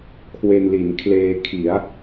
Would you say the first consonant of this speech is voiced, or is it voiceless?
voiceless